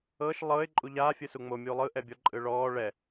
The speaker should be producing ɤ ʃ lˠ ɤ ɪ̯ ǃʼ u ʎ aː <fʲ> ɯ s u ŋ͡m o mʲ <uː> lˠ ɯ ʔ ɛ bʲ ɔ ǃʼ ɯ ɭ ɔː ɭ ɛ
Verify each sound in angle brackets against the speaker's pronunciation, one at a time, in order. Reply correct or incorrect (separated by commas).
correct, correct